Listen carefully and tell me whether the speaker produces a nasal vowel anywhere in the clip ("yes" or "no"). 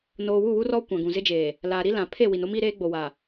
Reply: yes